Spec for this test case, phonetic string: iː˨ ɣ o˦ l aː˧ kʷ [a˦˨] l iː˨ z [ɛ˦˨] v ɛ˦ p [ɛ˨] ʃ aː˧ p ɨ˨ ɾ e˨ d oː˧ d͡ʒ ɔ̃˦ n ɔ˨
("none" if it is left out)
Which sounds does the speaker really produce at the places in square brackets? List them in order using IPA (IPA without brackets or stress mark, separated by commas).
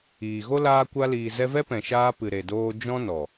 a˧, ɛ˧, ɛ̃˨